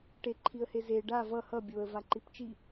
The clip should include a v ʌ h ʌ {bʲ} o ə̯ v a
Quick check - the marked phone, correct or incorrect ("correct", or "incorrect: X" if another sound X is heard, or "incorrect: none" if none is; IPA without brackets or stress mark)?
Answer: correct